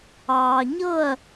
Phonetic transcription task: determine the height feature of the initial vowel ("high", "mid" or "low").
low